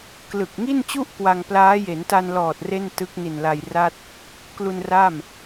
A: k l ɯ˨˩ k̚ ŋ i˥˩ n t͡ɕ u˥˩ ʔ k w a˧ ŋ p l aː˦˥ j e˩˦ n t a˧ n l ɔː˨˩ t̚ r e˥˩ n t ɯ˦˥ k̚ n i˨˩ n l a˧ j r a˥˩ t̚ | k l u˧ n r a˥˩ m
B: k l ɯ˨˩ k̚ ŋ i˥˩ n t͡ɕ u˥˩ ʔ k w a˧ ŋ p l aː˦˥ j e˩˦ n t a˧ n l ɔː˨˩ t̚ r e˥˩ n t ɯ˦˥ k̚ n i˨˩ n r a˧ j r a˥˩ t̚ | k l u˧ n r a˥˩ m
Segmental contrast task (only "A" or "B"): A